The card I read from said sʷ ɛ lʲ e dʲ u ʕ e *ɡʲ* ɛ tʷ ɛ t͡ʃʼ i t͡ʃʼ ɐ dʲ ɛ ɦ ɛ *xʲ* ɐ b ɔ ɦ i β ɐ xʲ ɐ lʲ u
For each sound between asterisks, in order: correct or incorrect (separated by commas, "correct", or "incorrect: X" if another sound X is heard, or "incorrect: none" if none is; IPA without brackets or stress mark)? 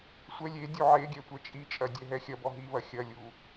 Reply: correct, correct